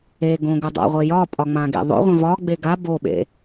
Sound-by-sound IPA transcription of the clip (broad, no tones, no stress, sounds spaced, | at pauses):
e ɡ õ ɡ ɵ dˤ a̰ ʁʷ e j ɒ pʼ ɒ ŋ͡m ã ɡ ḛ ðˤ o̰ ʁʷ ẽ v ɒ ɡ͡b e ɡ a b o ɓ ḛ